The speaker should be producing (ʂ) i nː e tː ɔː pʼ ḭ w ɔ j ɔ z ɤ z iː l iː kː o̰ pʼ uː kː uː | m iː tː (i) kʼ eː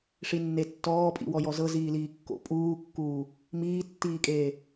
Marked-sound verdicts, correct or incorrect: correct, incorrect: iː

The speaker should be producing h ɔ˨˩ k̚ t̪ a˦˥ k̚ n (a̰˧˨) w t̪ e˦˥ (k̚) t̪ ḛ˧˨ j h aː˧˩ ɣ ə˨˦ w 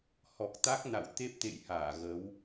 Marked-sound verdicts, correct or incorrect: correct, incorrect: p̚

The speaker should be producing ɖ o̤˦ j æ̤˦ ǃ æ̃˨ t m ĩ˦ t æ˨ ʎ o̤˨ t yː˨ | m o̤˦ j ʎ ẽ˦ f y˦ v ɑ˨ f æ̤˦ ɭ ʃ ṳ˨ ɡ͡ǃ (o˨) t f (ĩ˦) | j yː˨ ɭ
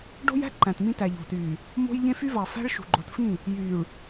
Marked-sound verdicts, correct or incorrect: correct, incorrect: ĩ˦˨

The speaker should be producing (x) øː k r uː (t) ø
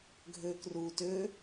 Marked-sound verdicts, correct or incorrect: incorrect: ɡʱ, correct

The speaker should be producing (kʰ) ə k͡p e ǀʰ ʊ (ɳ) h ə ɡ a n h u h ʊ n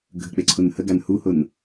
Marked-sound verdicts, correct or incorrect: incorrect: ɡʱ, incorrect: n

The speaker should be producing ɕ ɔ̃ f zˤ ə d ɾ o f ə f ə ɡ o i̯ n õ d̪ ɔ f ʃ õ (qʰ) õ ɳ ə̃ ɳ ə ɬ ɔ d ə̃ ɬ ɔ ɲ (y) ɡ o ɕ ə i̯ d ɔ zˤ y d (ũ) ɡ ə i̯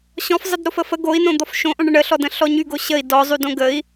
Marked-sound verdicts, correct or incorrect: incorrect: ʔ, correct, incorrect: õ

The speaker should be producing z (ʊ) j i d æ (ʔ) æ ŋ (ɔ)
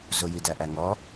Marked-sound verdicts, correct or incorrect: correct, correct, correct

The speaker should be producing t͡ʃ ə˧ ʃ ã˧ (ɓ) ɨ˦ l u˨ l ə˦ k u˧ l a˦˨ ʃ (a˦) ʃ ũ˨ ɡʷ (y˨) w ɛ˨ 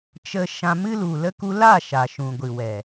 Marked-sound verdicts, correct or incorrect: incorrect: m, incorrect: a˨, incorrect: ɨ˨

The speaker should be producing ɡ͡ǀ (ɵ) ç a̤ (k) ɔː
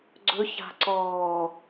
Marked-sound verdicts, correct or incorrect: correct, incorrect: ǀ

